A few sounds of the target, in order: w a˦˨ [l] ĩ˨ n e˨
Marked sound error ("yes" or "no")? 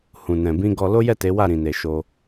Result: yes